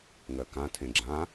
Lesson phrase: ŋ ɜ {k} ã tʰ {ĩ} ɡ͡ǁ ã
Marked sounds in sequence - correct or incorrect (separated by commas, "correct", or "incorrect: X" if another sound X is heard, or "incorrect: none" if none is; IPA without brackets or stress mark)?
correct, incorrect: ẽ